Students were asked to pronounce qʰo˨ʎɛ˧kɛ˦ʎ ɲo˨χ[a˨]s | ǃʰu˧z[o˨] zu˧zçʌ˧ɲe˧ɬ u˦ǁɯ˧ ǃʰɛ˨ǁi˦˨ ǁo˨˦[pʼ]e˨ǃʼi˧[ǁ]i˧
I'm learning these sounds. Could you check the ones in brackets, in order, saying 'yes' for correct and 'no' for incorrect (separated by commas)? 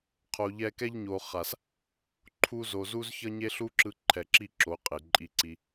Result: yes, yes, no, no